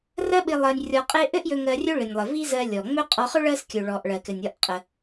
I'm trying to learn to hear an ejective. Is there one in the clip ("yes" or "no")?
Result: yes